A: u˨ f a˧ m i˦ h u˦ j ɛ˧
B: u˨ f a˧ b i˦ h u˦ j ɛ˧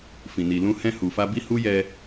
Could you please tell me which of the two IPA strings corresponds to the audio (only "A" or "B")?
B